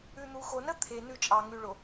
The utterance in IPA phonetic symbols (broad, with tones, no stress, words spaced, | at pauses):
ʉ˨n̪u˨xo˨nə˦ t̪ʰe˨ nʉ˦˨t͡ʃʼɑ˨ŋʉ˨ɭo˨